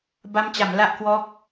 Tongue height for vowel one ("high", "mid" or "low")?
low